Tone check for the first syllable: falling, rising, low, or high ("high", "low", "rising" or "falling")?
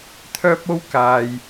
high